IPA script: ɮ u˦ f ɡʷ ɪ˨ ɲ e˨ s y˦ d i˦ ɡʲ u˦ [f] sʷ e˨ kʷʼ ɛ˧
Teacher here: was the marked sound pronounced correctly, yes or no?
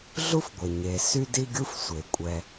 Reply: yes